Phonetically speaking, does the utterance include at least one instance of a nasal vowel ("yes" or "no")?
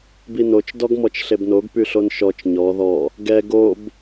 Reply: no